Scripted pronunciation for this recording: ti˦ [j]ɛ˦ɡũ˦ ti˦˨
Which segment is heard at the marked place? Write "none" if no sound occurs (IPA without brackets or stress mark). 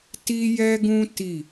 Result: j